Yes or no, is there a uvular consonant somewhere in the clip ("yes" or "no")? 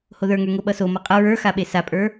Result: yes